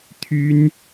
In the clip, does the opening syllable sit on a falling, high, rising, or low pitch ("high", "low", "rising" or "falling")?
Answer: high